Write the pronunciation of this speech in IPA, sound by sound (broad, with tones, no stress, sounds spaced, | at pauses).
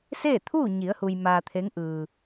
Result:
s eː˥˨ t̪ʰ uː˥˨ ɲ i˩˧ ə̯ h u˧ j m aː˧ t̪ʰ e˧˥ ŋ ʔ ɯː˩